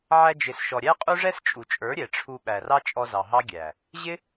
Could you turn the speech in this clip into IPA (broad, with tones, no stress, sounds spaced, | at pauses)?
ʕ æ˧ d͡ʒ ɪ˨ s ʃ ɔ˨ ɾʲ æ˦ qʼ u˦ ʐ ɛ˦ s t͡ʃʼ u˨ t͡ʃʼ ə˞˨˦ ɾʲ ɛ˨ ʈ͡ʂʰ u˧ ɓ æ˨ r ɑ˦ t͡ʃʼ ɔ˧ z ɑ˨ ɦ ɑ˦ ɡʲ æ˨ | ʑ ɪ˦